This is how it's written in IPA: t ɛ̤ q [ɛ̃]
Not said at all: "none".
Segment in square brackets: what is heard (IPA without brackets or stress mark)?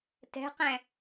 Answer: ɛ̃